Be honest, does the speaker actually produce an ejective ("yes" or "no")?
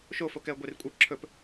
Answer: yes